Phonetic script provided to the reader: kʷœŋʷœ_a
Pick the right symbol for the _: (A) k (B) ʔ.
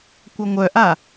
B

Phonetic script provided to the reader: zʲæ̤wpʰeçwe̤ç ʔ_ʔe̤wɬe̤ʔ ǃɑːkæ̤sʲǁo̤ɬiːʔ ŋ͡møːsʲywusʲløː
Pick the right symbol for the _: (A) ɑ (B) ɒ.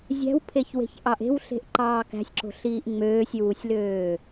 A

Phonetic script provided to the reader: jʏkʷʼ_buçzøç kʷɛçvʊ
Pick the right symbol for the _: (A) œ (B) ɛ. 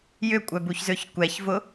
A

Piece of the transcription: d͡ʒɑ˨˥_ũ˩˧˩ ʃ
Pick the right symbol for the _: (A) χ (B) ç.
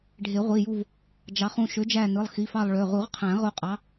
A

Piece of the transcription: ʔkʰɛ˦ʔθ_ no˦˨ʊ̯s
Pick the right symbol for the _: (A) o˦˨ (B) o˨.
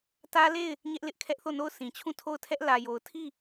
A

